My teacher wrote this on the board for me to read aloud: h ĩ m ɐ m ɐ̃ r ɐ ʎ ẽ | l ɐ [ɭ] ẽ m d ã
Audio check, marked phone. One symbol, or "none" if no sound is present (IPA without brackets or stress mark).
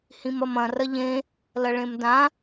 ɭ